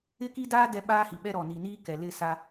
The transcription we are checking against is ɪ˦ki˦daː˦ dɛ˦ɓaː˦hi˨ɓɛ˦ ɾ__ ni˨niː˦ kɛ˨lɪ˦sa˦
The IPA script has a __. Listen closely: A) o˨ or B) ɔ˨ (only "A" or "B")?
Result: B